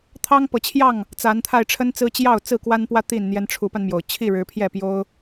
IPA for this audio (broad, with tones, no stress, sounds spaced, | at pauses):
t̪ʰ ɑ˦ ŋ p ɤ˨˦ t͡ɕʰ j ɑ˥˨ ŋ | t͡s a˨˦ n t̪ʰ a˧ ɪ̯ ʈ͡ʂʰ ə˦ n t͡s ɹ̩˦ t͡ɕ j ɑ˥˨ ʊ̯ t͡s ɹ̩˥˨ k w a˦ n p w ä˦ t̪ i˥˨ n n̪ j ɛ˦ n ʈ͡ʂʰ u˨˦ p a˧ n m j o˩ ʊ̯ t͡ɕʰ i˥˨ ɻ ɻ̩˨˦ pʰ j ɛ˥˨ p j o˦ ʊ̯